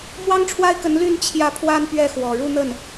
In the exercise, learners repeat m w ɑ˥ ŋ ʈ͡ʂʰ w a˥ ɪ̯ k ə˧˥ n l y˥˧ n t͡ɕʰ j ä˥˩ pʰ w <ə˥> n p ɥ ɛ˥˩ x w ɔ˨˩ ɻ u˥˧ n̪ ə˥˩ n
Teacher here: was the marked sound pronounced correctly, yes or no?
no